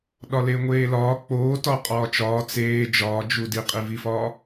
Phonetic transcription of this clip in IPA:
ɗ ɒ l e ŋʷ eː l ɒː k͡p oː t ɒ qʼ ɒː t͡ʃ ɒː t͡s eː d͡ʒ ɒː d͡ʒ u d i qʼ i v i f ɒː

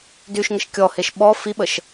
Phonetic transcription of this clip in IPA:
d y ʃ ŋ ə ʃ kʲ ɔ h e ʃ ɓ ɔ f i ɓ ə ʃ

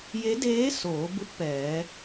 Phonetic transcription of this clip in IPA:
j e˧˥ d eː˧˥ s oː˩˧ b u˧ t̚ p ɛː˩˧

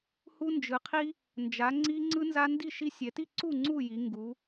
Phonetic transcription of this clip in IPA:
h u˦ n d͡ʒ ɯ˨˦ qʰ i˦ | n d͡ʒ a˨˦ ŋ͡ǀ i˦ ŋ͡ǀ ɯ˦ n z a˦ n d i˥˨ ʃ i˦ sʲ ɛ˨˦ t i˥˨ ǀ u˥˨ ŋ͡ǀ u˥˨ j i˨˦ ŋ ɡ u˨˦

